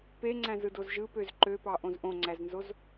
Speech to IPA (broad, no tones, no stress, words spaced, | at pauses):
peŋ͡ǀæ̃z ɯdozʒɯpøz ǃøpɑ ʔõzʔõŋ͡ǀæznzoz